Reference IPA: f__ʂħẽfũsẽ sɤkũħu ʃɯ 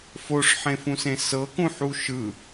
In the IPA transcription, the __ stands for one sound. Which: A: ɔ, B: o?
B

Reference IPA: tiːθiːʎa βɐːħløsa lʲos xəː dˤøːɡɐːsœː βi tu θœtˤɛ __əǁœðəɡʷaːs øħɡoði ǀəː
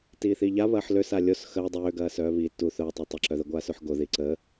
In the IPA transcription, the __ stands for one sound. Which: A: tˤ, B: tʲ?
A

